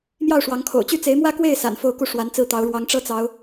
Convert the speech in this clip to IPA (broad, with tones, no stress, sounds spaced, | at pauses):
m j ɑ˥˩ ʊ̯ ʂ w ɑ˧˥ ŋ kʰ o̰˨˩ ʊ̯ t͡ɕ y˥˩ t͡s e˧˥ ɪ̯ m w ä˥ k w e˥˩ ɪ̯ s a̰˨˩ n f o˥˧ ʊ̯ k u˥˩ ʂ w a˧˥ n t͡s ɹ̩˥˩ t̪ ɑ˧˥ ʊ̯ ɻ w ɑ˧˥ ŋ ʈ͡ʂ ɤ˥ t͡s ɑ˧˥ ʊ̯